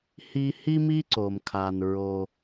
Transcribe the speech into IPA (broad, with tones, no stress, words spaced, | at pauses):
hi˧hi˥mi˥ ǀo˩mkʰa˩nɹo˩